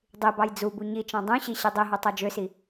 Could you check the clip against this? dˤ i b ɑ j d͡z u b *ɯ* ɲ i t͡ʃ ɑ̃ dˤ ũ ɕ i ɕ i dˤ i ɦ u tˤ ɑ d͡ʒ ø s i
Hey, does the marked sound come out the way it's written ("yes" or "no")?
no